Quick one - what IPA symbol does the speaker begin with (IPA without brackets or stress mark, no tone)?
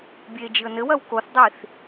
bʲ